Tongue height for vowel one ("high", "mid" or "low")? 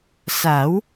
low